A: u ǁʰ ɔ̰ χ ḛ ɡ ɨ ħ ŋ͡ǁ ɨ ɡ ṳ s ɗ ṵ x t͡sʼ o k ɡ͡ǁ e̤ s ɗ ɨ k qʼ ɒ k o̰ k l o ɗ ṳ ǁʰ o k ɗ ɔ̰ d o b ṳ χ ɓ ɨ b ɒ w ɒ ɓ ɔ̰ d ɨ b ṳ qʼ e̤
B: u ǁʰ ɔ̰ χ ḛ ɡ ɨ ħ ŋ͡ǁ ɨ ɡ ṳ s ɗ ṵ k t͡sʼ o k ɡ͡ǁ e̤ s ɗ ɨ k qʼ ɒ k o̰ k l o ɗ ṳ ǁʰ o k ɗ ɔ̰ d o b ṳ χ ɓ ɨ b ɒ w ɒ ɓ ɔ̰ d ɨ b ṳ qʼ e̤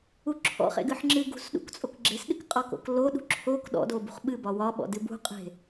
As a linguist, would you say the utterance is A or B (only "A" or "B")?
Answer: B